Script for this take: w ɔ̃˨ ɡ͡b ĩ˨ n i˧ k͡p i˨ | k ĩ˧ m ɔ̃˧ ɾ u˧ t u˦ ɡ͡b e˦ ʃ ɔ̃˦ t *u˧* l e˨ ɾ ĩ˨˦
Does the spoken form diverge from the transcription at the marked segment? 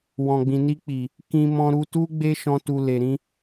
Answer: no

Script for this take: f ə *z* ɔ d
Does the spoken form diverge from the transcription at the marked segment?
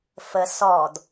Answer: yes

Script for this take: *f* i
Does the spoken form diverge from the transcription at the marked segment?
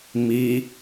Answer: yes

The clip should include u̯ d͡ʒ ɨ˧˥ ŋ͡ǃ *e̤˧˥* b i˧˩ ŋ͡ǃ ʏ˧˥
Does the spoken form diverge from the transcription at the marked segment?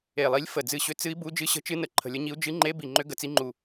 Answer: yes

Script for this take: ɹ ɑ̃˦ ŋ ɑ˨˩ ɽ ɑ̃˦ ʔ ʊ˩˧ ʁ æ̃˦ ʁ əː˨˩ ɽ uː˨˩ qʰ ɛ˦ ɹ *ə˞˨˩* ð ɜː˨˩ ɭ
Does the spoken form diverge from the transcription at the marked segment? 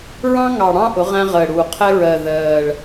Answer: yes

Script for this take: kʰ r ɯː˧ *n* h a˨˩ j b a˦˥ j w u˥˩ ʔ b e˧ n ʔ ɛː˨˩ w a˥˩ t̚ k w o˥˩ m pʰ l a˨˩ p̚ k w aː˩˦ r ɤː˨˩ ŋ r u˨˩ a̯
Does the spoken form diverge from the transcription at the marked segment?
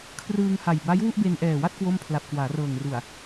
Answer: yes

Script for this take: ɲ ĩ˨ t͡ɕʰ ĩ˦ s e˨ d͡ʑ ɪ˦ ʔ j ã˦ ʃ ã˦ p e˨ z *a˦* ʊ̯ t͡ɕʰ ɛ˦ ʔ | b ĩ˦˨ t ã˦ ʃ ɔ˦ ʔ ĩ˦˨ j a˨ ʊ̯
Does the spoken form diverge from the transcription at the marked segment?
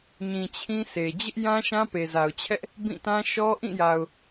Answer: yes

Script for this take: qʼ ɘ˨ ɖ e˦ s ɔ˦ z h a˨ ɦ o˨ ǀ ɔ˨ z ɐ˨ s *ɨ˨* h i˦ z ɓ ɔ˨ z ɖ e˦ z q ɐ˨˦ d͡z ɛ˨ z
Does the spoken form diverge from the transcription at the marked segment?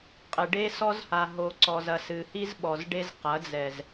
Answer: no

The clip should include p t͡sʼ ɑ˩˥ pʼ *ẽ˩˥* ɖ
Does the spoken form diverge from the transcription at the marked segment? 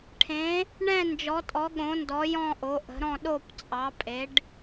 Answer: yes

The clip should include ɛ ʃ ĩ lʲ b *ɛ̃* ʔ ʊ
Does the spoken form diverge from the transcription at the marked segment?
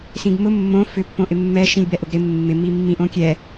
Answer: yes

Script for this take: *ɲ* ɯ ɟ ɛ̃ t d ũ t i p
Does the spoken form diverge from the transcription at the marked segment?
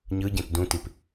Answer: no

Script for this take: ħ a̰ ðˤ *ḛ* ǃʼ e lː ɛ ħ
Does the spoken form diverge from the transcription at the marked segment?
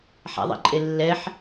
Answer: no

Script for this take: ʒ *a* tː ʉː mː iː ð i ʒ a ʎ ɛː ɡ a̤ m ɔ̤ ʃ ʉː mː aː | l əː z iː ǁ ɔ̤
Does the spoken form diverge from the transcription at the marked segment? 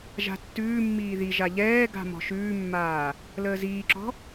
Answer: yes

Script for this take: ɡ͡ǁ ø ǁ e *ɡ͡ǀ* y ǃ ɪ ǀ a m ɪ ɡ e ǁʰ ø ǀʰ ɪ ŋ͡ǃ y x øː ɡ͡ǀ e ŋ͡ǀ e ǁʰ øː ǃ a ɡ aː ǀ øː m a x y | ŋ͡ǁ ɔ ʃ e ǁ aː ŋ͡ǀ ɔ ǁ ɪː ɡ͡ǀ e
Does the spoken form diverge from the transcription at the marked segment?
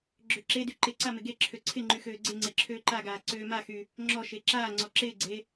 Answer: yes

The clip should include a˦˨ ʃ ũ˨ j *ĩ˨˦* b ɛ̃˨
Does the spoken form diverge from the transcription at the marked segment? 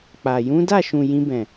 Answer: yes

